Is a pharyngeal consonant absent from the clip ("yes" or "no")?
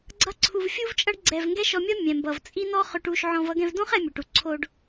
no